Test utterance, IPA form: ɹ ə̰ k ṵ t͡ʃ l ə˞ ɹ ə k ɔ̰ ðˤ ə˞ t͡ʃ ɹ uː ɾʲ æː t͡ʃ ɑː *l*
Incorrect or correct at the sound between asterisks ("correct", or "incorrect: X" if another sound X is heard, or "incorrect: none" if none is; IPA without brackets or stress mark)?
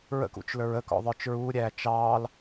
correct